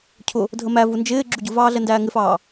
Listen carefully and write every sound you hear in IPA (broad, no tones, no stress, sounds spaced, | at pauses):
cʰ ʊ | dʱ ə m æ v u n d͡ʒ ɪː ɡ͡ǁ u ɟ ʊ v ɑː ɮ ɛ n d æː ŋ ɪ f ɑː